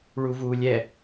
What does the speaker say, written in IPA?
ɭuvuːlʲɛ

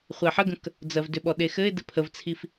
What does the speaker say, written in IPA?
χʷɛħəɡə̃k | d͡zɜvdʏɓɔ ɗexɘɪ̯dɘ pʰəvt͡sʰif

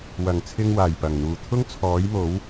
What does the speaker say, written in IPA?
wɐ˨˩ŋt͡sʰɪ˧ŋwaː˨˩j pɐ˨˩ŋn̪uː˨ t̪ʰʊ˥ŋt͡sʰɔː˨˥jmo˨˥w

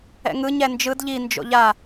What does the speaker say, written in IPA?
ɛ̰ŋɯ ɲɛnd͡ʒɯd ʎi nd͡ʒo̰ʎa

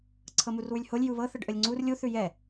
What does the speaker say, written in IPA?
ǀʰɤmurwʉlʲholʲ juβɤ θəɖʔəlʲŋ͡ǀur lʲu θʉjɛ

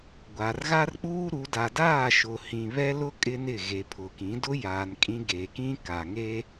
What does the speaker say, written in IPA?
ɡʷa˨rɣa˦rk͡puː˦ ɾu˨˦ da˨daː˦˨ʃʊ˨hĩ˨ βɛ˦lʊ˦ kʼɪ˦nɪ˦˨ ɣe˨pʰʊ˨kĩ˨˦ dʊ˦jaː˨n kʼĩ˦ ɡe˨ kĩ˦ka˨ŋe˦

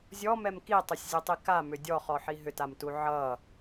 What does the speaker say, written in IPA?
zʲɔmɛm kitˤʏsʲzʲʌtˤi kamʏ dʲɔχɔħi ɦʏtamtu ʕʌ

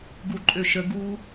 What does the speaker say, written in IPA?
ɡuǃʼøʃə ɡu

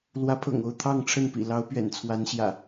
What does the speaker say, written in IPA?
lwä˨˦pʰɤ̰˨˩ŋo˥˨ʊ̯ t̪ʰɑ˥˨ŋʈ͡ʂʰə˥˨npḭ˨˩ lɑ˨˦ʊ̯ pɥɛ̰˨˩nt͡sʰwa˨˦nɕjä̰˨˩

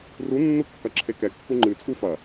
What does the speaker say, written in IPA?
runːukːɐ ǁʰekɛkːu ŋ͡ǃɨt͡sʼu fɐ

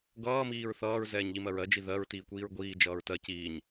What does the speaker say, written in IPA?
ɡʌː miːɹθʌːɹ zɛːɲʎimɜɹɜ d͡ʒiðɜɹ tiːkʷiːɹɡʷiː d͡ʒʌːɹtɜ ciːɲ

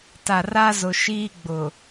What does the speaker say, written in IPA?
ta˨ra˦zʊ˨ ʃiː˦ɡ͡bʊ˨

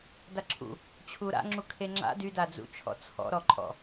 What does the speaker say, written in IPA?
daǁʰṵ | t͡ɕʰuɾa̰ ŋ͡ǁukʰeŋ͡ǁa̰ dydad͡zṵt͡ʃʰɔ̰ t͡sʰɔ̰ɾɔǃʼɔ̰

